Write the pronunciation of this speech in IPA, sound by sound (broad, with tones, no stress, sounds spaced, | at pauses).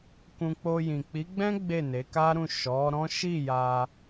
k ũ˧ k͡p o˧ j ĩ˨ k͡p i˨˦ ɡ͡b ɛ̃˦ ɡ͡b e˦˨ n e˨˦ k a˦ ɾ ũ˦˨ ʃ ɔ˨˦ ɾ ɔ̃˦ ʃ i˦˨ j a˧